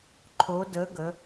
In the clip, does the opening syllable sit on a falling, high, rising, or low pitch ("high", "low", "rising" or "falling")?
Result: rising